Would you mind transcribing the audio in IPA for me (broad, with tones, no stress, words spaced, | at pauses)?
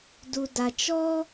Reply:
du˨da˨ t͡ʃɔ˦